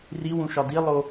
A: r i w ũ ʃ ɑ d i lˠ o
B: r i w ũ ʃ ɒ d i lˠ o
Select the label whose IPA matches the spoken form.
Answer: B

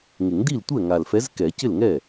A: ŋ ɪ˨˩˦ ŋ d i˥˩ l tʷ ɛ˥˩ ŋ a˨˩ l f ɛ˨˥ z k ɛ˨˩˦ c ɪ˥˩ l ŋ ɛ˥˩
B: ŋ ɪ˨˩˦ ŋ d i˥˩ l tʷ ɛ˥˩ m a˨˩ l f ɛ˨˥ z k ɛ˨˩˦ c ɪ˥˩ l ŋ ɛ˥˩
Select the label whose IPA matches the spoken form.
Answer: A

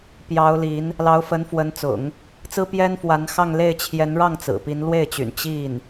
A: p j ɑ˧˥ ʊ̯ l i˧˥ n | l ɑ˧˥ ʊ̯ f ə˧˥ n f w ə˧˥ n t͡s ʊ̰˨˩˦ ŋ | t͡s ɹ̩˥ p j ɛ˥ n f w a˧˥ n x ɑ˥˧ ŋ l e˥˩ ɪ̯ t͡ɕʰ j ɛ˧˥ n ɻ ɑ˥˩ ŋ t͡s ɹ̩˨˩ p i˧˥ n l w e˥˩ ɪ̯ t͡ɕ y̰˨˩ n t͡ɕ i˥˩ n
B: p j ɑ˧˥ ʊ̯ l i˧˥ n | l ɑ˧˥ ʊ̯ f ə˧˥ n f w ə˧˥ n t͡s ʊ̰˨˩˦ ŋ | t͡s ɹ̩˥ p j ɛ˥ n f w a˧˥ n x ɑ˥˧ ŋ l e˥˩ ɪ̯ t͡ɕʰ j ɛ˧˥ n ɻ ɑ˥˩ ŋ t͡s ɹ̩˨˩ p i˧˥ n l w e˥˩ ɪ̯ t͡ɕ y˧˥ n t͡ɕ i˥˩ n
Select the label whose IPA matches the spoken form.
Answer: A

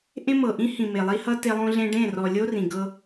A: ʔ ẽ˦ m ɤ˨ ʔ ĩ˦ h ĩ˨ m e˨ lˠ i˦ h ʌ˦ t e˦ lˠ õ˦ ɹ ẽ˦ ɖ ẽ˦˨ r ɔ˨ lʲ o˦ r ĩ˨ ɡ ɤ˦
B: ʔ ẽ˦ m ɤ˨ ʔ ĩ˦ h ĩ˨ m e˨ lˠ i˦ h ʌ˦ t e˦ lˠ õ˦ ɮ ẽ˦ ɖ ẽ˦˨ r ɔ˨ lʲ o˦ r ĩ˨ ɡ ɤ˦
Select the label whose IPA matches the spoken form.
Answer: B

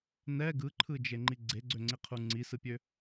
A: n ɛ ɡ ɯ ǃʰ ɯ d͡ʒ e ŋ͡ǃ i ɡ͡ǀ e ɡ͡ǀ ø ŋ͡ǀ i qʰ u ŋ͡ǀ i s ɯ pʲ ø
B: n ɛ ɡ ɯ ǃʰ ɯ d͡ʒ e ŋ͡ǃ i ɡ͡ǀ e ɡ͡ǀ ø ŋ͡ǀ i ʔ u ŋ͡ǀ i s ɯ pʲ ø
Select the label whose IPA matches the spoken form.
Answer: A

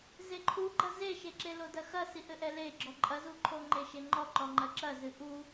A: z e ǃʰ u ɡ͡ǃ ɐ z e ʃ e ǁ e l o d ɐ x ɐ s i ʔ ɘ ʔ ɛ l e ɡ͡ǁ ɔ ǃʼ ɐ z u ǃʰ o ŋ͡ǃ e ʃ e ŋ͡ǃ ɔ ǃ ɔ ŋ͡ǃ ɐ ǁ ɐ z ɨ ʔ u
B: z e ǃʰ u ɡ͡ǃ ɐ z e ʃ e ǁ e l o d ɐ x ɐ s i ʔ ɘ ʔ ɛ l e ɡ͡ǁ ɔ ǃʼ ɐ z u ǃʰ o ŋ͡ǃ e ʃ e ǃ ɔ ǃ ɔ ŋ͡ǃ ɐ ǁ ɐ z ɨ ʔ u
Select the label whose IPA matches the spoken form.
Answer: A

